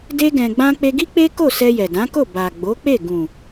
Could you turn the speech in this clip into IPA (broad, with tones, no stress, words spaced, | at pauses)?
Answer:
de˦ɡɛ̃˧ɡ͡bã˦ k͡pe˧ɡi˦ k͡pe˦ko˦˨ sɛ˧jɛ˨dã˨˦ko˦˨ ba˨ɡ͡bo˨˦k͡pe˦˨ ɡũ˨